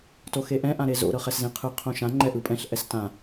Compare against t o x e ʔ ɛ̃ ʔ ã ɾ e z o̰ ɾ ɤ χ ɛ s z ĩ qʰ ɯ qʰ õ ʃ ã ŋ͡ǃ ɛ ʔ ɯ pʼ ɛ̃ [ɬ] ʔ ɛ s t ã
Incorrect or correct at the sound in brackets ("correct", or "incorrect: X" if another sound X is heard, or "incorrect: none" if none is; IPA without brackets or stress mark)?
correct